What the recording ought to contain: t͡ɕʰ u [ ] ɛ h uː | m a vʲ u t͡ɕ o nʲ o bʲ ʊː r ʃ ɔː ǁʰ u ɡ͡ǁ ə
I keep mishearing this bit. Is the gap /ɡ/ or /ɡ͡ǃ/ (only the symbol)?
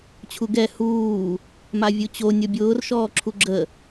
ɡ